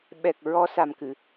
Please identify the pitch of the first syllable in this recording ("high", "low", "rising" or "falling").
low